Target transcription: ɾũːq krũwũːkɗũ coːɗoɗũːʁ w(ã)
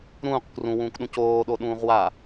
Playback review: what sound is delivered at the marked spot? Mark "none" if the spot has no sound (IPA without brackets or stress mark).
a